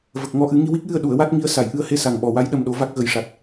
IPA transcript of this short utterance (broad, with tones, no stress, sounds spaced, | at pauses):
v ə˨˩ k̚ ŋ ɔ˧˥ ʔ ɨ˨˩˦ ŋ i˧ w i˦˥ k̚ j ɨ˧ ə̯ ɗ u˨˩˨ ə̯ w a˦˥ t̚ ŋ i˧˥ ə̯ s a˨˩˨ j ʔ ɨ˧ ə̯ h e˧ s a˨˩ ŋ ɓ ɔ˨˩ w a˧˥ j ɗ ə˧ m ɗ o˧˥ v a˦˥ k̚ ɣ ə˨˩˦ j ʂ a˨˩ t̚